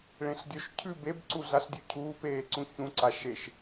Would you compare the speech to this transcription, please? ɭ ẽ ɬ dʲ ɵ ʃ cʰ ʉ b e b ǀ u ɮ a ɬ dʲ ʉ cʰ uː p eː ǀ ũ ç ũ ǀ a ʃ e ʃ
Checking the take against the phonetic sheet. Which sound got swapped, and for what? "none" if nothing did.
none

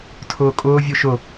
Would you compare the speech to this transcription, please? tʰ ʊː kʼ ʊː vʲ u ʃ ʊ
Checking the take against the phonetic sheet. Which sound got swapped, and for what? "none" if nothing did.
none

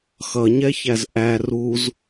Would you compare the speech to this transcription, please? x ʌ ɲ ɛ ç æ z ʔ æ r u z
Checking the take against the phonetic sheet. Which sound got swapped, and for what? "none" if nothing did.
none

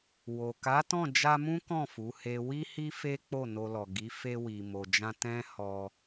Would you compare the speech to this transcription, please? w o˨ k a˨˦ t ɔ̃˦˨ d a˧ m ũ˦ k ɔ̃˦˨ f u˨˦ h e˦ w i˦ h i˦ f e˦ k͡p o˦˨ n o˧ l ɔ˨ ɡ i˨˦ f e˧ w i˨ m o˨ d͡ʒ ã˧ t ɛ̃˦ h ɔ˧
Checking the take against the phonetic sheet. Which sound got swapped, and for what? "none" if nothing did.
d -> d͡ʒ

